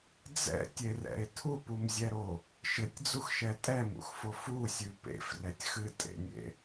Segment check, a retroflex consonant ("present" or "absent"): absent